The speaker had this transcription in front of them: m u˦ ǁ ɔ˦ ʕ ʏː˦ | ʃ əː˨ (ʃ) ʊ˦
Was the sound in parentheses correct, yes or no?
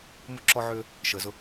no